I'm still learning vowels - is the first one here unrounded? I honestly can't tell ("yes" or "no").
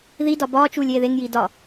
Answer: yes